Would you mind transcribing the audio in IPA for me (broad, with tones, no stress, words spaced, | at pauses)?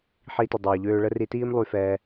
ħi˧tə˨ dˤœː˨ʎøː˧ɭə˦ ri˧tiː˦m lˠy˧fɛː˧